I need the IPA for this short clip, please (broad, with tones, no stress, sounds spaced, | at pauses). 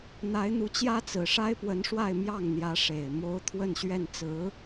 n̪ a˧˥ ɪ̯ n̪ u˧˥ t͡ɕ j ä˥ t͡s ɹ̩˨˩ ʂ a˥ ɪ̯ p w ə˧˥ n ʂ w a˥˧ ɪ̯ m j ɑ˥˩ ŋ n̪ j ä˧˥ ʂ e˨˩ ɪ̯ m o˧˥ ʊ̯ t̪ʰ w ə˥˧ n ɕ ɥ ɛ˥˩ n t͡s ɹ̩˧˥